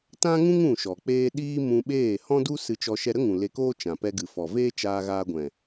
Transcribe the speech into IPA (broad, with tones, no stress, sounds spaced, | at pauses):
t ã˦ ŋ ũ˦ ŋ ũ˦˨ ʃ ɔ˨ k͡p eː˦ ɗ iː˦ m ũ˧ ɓ eː˦˨ h ɔ̃˦ d u˦ s ɨ˧ t͡ʃ ɔ˧ ʃ ɛ˧ ɾ ə˦ ŋ ũ˨ l e˧ k oː˦ t͡ʃ ã˨ p ɛ˧ ɡ ɨ˨ f ɔ˨ v eː˦ t͡ʃ aː˧ ɣ aː˧ ɡʷ ɛ̃˨